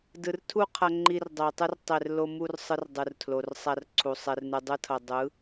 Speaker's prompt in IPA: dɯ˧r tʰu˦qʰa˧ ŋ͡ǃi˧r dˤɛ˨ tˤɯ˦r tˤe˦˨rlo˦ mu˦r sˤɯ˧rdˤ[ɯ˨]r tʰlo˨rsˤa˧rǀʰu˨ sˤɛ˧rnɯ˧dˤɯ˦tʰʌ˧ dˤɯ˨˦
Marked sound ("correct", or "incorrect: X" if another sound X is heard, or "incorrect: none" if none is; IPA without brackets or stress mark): correct